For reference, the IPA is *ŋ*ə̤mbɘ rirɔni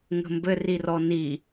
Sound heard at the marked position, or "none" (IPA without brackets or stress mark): ŋ